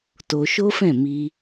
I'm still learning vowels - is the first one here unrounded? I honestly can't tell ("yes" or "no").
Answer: no